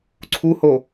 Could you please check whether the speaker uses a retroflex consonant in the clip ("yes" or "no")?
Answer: no